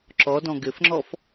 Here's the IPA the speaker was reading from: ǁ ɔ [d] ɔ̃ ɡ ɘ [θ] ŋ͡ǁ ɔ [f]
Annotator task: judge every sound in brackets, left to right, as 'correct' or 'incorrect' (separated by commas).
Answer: correct, incorrect, correct